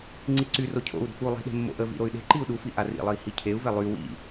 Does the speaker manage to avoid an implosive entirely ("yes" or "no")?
no